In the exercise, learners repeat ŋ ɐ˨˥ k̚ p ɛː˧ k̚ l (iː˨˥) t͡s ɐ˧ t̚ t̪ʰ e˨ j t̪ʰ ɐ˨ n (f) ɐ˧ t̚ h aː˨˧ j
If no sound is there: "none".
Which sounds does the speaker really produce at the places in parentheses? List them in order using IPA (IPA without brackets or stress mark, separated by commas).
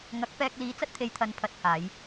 iː˨˥, pʰ